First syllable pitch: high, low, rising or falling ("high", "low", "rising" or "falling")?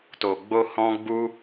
low